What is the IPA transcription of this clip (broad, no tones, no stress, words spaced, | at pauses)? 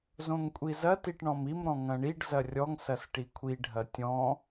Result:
zõŋkʷʼizɐ tiʈɳɔ̃mim ɾɔ̃ŋɐ̃ɳiɖ zɐrʲɔŋ sɐsʈikʷʰi ɖʱɐtʲɔ̃